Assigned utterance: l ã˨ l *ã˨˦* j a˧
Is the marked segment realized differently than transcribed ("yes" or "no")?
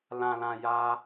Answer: yes